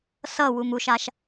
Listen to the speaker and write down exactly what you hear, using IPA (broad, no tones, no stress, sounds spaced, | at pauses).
s ʌ w u m u ʃ a ʃ